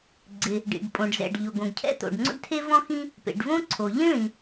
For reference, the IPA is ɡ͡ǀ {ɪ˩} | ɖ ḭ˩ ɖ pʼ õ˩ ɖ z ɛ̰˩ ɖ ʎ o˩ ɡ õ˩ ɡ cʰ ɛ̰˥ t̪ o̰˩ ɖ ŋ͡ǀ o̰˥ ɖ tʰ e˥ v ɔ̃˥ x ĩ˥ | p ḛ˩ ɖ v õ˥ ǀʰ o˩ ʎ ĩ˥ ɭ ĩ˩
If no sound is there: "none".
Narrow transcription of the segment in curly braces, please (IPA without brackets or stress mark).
ɪ˩